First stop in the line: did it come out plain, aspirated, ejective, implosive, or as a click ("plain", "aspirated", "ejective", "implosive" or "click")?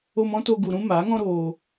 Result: plain